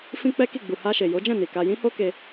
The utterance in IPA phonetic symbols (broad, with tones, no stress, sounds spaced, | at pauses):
f ĩ˦ k͡p ɛ˦ k i˦˨ ɡ͡b u˨ h a˧ ʃ e˨ j o˨˦ d͡ʒ ɛ̃˦˨ n i˨ k a˧ j ĩ˦ h o˦ k e˧